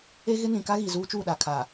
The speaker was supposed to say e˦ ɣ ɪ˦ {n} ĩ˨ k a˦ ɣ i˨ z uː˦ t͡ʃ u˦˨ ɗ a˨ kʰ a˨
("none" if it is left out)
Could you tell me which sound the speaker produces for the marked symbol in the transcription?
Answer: n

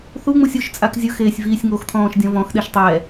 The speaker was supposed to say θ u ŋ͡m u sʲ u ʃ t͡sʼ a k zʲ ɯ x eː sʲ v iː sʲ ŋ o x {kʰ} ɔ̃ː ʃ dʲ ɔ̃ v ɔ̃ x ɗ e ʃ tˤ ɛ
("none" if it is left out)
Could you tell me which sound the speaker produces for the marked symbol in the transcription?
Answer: t̪ʰ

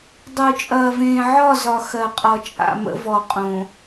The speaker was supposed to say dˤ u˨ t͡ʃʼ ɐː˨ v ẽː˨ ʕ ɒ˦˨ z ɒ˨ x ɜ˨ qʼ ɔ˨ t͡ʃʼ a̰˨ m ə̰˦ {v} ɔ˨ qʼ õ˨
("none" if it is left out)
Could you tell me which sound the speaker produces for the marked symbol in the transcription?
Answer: v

